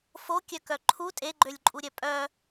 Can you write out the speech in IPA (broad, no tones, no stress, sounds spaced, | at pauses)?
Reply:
f o kʲ œ k œ ǃʰ u tʼ e ɡ͡ǃ ø lʲ ǃʼ u ɾʲ œ pʼ œ